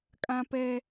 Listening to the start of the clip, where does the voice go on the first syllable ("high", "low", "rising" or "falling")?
high